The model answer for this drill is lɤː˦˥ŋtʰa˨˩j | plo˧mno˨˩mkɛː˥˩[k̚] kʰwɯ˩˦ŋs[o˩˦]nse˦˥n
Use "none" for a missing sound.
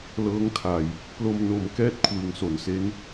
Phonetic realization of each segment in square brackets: t̚, o˩˦

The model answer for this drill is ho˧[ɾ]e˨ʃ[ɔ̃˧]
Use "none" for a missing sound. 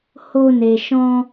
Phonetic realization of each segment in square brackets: n, ɔ̃˧

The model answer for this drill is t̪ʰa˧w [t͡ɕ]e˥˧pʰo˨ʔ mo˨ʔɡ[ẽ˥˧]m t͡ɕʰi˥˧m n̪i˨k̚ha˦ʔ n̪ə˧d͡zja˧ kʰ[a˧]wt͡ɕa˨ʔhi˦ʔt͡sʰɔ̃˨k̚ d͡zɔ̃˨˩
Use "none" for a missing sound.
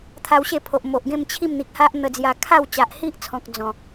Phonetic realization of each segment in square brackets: ɕ, ẽ˥˧, a˥˧

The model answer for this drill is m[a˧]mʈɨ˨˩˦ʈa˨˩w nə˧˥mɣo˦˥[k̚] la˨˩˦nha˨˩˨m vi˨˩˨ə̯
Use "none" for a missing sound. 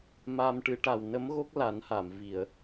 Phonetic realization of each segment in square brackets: a˧, k̚

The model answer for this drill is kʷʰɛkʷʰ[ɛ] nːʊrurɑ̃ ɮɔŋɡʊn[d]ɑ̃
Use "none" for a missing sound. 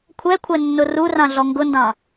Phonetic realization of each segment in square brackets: ɛ, d

